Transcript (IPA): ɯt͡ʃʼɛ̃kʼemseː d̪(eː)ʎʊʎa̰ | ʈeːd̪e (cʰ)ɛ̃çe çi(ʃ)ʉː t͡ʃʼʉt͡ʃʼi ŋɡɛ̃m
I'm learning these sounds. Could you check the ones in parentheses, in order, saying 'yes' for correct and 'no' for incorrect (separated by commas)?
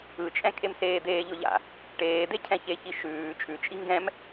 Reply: yes, yes, yes